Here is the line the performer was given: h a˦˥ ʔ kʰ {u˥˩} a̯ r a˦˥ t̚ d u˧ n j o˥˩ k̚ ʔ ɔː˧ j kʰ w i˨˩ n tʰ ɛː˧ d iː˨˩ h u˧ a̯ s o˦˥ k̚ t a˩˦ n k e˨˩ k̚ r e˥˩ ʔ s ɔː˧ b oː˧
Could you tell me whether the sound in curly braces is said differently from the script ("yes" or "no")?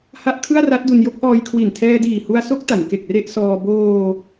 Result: yes